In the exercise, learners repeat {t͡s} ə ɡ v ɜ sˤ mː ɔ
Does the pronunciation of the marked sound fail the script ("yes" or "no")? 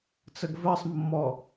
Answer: no